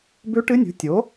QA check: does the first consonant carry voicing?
yes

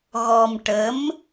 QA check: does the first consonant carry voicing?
yes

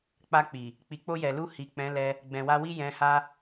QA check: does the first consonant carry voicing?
no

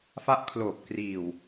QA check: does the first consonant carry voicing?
no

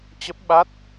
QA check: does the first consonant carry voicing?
no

